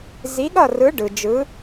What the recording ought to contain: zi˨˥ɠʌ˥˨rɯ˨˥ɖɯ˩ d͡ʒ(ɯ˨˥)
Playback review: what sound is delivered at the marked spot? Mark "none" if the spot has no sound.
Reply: ɯ˨˥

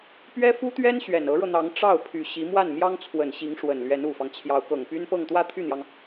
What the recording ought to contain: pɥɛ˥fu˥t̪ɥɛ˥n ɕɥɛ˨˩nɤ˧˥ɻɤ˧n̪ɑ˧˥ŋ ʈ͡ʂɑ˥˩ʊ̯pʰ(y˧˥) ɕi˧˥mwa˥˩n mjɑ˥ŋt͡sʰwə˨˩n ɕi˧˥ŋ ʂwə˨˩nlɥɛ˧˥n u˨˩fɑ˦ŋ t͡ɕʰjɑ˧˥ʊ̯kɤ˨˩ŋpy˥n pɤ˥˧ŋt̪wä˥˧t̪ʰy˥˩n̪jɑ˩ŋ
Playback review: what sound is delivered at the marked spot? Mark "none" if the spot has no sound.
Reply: y˨˩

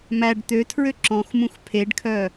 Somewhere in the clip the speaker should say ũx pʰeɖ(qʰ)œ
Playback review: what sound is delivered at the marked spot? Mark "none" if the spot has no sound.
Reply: kʰ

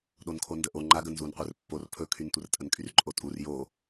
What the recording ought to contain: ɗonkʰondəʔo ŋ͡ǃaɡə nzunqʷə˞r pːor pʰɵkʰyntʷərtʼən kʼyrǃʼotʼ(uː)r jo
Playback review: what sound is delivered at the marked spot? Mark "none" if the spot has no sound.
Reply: u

